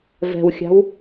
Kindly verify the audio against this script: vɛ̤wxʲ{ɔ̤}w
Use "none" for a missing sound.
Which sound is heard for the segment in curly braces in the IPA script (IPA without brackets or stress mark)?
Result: ɑ̤